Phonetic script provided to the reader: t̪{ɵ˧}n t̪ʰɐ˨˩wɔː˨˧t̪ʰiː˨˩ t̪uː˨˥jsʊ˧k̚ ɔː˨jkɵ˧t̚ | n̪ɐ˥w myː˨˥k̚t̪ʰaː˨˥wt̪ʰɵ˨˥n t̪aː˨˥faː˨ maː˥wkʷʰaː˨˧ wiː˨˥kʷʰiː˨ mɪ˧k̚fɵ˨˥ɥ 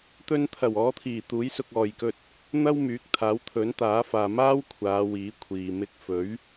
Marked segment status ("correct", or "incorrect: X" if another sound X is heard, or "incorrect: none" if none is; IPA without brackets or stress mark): correct